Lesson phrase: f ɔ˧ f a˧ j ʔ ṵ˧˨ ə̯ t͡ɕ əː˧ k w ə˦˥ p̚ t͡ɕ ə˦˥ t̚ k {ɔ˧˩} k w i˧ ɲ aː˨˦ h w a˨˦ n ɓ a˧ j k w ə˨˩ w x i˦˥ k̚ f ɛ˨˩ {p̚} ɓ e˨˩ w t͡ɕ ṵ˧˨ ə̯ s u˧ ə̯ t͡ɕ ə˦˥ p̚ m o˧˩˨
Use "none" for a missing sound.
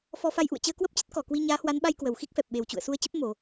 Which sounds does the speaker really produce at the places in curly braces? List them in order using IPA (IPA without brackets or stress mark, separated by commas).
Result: ɔ˧˩, p̚